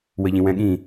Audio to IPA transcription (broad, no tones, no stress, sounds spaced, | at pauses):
w ə ʎ ĩ w ɛ̃ ɠ ĩ